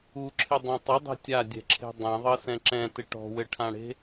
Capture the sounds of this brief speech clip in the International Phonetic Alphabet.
uǁʰɪdˤẽ tˤɪdˤɛ̤ tʲadʲɛ̤ǁʰe̤ dˤɛ̃ðˤɤsɛ̃ ǁɛ̃tɪ ʈɔ̤wɘʈʰãɽe̤

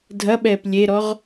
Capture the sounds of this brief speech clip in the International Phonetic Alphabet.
dʱɐɓɛːp lʲeɾɔʁ

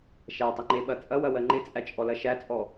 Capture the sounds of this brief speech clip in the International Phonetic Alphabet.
ʃætˤɪŋ͡ǃeɓɐ t͡sʼɐwɐwɜ ŋ͡ǃɪt͡sʼæt͡ʃʼɔlɐ ʃæt͡sʼɔ

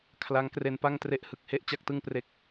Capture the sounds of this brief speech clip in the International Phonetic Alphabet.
kʰla˦˥ŋkre˧npa˥˩ŋ tre˦˥ʔhɯ˨˩k̚ he˥˩ʔt͡ɕa˥˩k̚tɯ˥˩ŋpre˦˥k̚

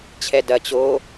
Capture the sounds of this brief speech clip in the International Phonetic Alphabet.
t͡ɕʰɛdɐ t͡ɕo

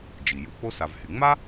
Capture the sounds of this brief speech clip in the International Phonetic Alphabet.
d͡ʒi˩ju˨k͡po˥sa˨v hy˩ŋ͡ma˥

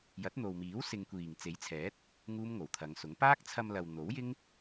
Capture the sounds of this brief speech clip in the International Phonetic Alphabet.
jɐ˨˥t̚n̪o˨wmiː˨˥w sɪ˨ŋkʷiː˨˩ŋ t͡se˨˥jt͡sʰɛː˨˥t̚ | ŋuː˥mŋo˨˩wt̪ʰɐ˨˧ŋsʊ˨˥ŋ paː˥k̚t͡sʰɐ˧m lɐ˨w n̪o˨˥wjɪ˥ŋ

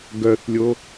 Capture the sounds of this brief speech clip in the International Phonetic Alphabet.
ɡœθlʲo

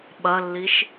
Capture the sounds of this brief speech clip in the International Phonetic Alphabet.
ɓɐlːiʃ

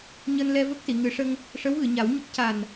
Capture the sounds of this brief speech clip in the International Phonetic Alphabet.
ɲəː˧nlɛ˧və˦˥k̚si˨˩˨ ŋɨ˨˩˦ʂə˧ŋ | ʂə˧˥wɣɨ˨˩˨ɲa˨˩˦wɲə˦˥k̚ ca˨˩n

